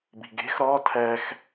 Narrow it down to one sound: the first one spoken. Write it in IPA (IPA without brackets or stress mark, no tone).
b